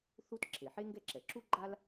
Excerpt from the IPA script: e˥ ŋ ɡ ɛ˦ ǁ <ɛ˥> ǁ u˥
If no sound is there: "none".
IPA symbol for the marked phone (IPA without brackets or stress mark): ɛ˩